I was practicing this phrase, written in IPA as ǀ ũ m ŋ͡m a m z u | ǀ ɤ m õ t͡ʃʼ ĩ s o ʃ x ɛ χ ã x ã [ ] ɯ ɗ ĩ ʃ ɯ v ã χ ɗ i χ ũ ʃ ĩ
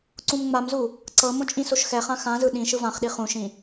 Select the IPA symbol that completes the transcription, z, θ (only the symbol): z